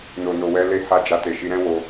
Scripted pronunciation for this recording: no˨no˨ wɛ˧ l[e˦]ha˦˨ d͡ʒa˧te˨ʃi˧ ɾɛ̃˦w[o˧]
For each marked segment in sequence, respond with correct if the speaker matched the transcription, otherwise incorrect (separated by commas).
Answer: correct, correct